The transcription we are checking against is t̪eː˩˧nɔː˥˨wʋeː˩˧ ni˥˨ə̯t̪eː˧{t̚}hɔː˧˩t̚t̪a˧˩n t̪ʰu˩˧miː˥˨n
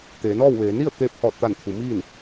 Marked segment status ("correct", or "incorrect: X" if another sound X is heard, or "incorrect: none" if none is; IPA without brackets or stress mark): incorrect: p̚